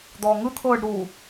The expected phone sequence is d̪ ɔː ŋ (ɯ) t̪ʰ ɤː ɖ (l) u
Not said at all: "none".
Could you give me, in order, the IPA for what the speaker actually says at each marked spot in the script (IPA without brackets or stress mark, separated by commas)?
ɯ, ɾ